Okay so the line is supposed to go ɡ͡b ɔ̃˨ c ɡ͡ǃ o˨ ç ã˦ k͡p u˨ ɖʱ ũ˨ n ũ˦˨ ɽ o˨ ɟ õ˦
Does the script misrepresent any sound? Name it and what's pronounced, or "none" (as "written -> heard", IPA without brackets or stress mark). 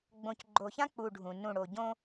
ɔ̃˨ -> õ˨